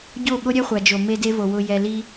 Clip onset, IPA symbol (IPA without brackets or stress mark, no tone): ɟ